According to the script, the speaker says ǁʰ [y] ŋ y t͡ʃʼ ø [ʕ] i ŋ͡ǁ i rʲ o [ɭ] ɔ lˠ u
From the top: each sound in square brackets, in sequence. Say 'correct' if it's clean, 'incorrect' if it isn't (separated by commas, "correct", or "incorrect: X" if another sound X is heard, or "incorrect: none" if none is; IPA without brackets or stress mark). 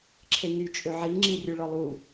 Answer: incorrect: e, correct, correct